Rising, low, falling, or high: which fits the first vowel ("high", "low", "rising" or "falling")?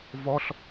high